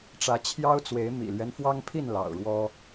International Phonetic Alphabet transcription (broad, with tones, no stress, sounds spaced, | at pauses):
ʈ͡ʂ ä˨˦ t͡ɕʰ j ɑ˦ ʊ̯ t͡s w e˨˦ ɪ̯ m ḭ˨˩ l ɥ ɛ˦ n f w ɑ˦ ŋ pʰ i˥˨ n l ɑ̰˨˩ ʊ̯ ɻ w ɔ˦